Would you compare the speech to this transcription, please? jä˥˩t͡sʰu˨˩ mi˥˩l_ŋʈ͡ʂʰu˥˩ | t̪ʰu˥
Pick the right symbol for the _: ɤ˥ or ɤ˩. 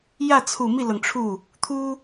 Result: ɤ˩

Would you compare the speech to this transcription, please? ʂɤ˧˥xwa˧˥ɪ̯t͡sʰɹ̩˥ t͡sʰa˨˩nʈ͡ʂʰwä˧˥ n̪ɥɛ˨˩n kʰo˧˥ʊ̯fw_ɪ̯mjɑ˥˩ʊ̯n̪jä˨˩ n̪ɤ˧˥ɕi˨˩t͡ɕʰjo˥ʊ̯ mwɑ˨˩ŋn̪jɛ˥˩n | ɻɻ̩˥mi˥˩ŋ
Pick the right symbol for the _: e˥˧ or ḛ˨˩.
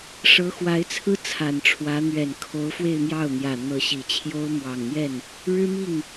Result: e˥˧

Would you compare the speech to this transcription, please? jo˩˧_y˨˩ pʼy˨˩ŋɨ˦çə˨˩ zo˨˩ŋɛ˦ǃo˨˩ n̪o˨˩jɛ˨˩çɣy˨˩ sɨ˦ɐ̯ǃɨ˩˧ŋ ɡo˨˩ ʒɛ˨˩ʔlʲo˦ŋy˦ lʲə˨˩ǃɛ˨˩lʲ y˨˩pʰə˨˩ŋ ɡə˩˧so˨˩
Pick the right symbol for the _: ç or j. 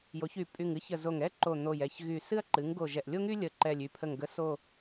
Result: ç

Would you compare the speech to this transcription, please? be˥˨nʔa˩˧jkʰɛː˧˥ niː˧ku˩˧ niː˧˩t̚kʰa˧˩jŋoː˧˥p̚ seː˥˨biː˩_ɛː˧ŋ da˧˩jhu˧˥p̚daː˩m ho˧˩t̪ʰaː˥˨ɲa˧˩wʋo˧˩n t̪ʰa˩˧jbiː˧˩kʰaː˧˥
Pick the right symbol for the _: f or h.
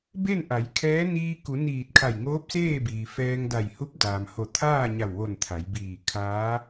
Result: f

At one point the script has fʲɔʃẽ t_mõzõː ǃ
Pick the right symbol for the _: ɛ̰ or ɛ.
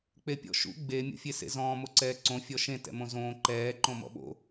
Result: ɛ̰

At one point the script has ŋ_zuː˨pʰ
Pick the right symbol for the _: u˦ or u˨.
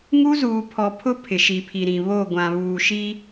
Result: u˦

